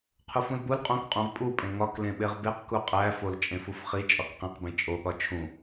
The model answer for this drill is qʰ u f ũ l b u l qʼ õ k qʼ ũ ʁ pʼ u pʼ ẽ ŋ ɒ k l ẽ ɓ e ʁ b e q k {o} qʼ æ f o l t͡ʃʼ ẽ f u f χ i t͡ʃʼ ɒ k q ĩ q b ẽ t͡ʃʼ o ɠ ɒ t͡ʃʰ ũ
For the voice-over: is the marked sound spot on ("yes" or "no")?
no